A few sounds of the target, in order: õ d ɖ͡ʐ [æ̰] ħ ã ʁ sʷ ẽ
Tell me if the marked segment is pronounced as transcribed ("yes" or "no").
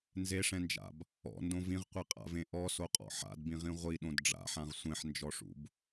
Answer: no